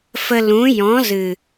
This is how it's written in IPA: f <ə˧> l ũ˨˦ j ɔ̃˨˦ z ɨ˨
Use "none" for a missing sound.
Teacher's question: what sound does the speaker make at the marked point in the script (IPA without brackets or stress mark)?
ə˧